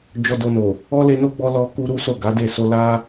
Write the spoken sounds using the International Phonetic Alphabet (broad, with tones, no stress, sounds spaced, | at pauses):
d͡ʒ ɔ˧ d o˧ n o˨ | ɔ˦ l e˧ n o˦ ɡ͡b ɔ˧ l ɔ˧ k u˦ ɾ u˦ s o˦˨ ɡ a˨˦ d e˦˨ s o˧ l a˦